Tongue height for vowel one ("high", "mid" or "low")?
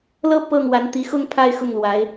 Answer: mid